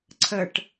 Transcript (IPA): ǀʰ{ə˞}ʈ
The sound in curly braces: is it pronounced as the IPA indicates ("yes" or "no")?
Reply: no